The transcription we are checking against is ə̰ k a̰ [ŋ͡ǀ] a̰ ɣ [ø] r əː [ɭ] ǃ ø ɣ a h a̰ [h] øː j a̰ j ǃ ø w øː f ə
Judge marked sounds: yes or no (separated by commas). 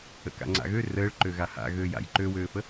yes, yes, yes, no